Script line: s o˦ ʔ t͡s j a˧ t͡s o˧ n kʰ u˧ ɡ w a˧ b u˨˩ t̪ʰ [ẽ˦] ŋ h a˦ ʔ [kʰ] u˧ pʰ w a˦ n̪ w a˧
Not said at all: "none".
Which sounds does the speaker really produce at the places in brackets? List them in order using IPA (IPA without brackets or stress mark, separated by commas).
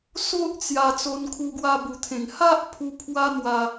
ẽ˨˩, pʰ